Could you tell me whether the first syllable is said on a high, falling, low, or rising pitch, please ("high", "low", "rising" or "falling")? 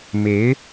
rising